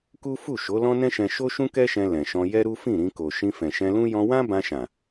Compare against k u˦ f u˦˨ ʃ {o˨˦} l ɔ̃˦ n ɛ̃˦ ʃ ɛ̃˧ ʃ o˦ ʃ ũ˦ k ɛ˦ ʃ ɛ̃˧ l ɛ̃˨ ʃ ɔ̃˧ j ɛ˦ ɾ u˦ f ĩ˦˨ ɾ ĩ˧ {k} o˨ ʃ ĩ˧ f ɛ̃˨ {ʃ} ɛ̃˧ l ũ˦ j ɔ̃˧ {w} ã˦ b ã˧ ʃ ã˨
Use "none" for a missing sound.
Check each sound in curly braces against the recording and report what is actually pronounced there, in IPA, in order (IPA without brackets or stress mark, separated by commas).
o˨˦, k, ʃ, w